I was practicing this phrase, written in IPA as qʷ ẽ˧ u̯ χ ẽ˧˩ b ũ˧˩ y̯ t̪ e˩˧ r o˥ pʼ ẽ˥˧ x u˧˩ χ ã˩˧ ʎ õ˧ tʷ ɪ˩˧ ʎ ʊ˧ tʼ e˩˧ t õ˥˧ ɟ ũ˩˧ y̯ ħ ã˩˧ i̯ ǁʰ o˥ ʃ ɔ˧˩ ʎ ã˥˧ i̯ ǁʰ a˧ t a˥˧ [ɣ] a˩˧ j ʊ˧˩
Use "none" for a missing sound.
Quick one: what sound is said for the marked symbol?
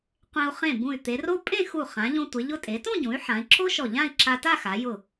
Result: x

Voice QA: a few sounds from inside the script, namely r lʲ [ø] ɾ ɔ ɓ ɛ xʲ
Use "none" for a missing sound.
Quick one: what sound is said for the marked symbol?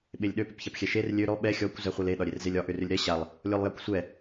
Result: ø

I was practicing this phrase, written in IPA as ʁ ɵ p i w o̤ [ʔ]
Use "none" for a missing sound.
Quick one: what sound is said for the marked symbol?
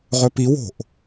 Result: ʔ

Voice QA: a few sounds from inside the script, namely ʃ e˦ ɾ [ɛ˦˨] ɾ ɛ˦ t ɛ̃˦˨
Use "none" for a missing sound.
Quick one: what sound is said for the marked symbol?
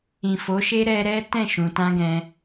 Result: ɛ˧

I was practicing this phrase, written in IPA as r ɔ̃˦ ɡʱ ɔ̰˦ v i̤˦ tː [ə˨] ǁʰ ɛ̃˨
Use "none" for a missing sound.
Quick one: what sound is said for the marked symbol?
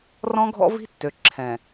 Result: ø˨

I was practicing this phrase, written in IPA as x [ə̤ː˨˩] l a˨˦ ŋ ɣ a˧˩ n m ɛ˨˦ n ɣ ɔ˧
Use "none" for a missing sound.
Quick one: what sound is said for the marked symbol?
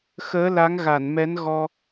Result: əː˨˦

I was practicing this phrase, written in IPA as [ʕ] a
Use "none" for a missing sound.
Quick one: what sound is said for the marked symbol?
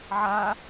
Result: ʕ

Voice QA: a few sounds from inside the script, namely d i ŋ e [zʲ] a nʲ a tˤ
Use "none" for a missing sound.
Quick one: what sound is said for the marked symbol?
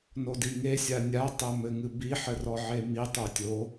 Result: sʲ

